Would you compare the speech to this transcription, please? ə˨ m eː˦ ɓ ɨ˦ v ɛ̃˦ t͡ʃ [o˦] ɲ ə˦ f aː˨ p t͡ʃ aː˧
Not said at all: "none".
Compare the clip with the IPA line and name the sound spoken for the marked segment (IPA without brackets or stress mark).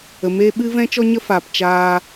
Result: ɔ˦